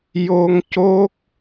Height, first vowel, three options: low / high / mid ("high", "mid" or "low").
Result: mid